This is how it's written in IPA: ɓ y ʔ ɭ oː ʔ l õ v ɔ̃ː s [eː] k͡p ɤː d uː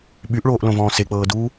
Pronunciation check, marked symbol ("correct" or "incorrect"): incorrect